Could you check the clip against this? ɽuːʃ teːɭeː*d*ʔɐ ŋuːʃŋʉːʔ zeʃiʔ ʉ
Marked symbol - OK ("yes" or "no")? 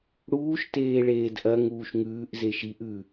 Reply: yes